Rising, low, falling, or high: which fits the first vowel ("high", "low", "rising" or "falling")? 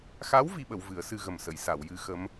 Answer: rising